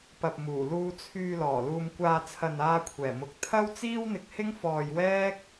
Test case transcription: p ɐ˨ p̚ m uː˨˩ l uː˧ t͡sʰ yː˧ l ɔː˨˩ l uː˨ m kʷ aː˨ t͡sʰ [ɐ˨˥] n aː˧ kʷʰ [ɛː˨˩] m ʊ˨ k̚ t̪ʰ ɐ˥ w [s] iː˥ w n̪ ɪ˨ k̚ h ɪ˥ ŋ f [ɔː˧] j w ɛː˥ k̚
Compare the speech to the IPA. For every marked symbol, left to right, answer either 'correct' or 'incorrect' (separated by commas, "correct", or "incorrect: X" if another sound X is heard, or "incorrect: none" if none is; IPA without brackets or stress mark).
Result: incorrect: ɐ˨, correct, incorrect: t͡s, correct